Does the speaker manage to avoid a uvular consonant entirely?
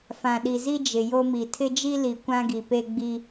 yes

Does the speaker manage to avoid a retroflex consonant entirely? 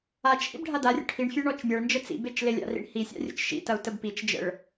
no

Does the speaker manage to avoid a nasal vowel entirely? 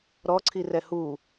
yes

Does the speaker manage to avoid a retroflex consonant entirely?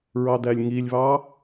yes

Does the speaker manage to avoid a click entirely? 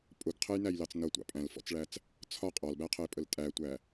yes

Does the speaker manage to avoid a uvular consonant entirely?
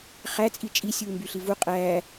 no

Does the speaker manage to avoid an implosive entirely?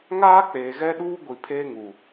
no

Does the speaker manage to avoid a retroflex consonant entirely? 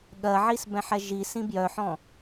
yes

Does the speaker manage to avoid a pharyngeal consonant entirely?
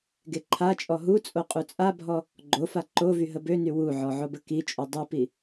no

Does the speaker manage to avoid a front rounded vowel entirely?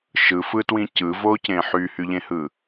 no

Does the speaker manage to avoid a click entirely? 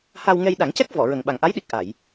yes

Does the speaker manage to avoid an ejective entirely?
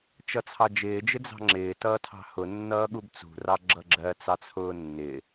yes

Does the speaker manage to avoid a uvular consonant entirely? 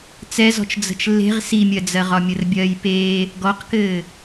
no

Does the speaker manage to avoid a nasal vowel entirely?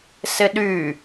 yes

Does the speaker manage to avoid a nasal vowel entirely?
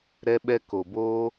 yes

